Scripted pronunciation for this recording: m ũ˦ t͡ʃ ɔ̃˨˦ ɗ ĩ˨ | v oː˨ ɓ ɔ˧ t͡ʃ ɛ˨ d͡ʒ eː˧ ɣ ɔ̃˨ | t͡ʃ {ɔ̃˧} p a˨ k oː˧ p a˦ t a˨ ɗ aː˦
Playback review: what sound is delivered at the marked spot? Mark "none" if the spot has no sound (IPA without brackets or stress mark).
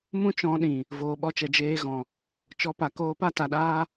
ɔ˧